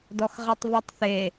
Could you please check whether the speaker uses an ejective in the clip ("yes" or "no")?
no